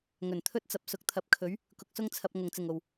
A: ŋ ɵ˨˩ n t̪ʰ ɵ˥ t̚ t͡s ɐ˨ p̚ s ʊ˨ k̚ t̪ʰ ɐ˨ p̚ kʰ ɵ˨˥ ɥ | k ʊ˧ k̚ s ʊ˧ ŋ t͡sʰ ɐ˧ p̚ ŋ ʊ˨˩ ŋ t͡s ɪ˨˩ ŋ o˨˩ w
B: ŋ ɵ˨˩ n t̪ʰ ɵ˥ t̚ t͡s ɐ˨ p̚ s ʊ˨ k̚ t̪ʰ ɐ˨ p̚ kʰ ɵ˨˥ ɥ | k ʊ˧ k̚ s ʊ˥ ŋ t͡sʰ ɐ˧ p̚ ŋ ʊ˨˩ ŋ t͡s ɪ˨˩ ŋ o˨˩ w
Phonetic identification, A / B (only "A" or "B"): B